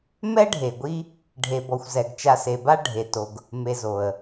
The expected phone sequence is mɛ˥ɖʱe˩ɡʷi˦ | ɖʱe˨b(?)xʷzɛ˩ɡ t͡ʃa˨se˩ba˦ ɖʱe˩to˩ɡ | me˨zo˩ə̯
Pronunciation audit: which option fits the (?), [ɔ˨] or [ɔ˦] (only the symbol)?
ɔ˨